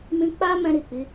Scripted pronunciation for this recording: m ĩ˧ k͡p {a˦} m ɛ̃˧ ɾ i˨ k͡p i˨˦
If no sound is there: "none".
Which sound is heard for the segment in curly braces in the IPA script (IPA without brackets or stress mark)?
a˦